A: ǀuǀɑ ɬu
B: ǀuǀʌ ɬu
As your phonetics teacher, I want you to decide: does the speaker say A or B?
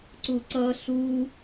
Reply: B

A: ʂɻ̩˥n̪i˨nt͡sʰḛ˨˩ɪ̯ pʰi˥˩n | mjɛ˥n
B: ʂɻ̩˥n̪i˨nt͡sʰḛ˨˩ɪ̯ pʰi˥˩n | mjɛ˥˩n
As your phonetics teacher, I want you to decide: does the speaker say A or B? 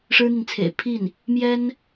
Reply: A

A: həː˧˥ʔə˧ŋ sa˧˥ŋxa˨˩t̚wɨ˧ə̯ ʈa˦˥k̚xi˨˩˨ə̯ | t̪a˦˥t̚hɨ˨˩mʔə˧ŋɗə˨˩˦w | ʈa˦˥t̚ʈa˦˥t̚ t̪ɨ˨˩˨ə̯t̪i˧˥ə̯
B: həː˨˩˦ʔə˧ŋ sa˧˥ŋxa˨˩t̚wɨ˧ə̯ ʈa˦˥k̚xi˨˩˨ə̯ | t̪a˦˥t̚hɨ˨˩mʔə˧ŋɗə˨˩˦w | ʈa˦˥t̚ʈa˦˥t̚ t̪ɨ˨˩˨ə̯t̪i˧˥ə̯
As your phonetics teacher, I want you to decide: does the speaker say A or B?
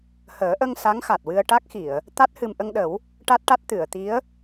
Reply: B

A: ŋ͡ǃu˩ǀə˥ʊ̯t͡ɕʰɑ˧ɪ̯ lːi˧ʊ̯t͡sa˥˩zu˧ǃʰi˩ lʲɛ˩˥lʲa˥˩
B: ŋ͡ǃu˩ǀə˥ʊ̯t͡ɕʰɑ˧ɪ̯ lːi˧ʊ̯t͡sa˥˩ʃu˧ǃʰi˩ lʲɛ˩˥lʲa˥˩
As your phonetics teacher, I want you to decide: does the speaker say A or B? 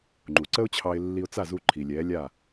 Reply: A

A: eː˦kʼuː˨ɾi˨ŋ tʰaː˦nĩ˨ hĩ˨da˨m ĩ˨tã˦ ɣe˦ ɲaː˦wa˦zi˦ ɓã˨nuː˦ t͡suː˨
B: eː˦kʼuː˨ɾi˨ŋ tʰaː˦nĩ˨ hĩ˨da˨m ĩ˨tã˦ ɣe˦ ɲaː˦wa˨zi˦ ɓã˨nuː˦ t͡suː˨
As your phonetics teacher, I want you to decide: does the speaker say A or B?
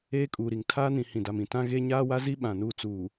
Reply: A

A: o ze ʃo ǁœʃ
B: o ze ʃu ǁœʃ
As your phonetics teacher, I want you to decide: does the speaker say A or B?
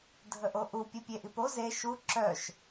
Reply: B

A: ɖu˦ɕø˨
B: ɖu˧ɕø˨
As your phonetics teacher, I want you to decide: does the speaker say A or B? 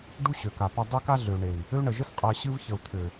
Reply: A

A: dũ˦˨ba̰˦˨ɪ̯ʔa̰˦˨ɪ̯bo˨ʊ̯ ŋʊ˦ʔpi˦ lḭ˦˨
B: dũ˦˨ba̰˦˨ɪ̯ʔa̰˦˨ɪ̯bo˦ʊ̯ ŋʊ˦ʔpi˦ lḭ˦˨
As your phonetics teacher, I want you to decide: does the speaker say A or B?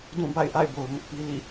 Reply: A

